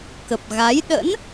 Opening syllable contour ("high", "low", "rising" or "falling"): low